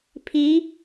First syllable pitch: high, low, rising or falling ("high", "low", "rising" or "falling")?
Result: rising